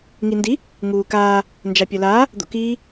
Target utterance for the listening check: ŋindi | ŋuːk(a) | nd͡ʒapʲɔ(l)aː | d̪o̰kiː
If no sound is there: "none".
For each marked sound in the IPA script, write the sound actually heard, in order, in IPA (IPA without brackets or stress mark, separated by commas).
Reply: aː, l